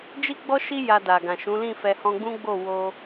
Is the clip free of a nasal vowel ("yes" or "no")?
no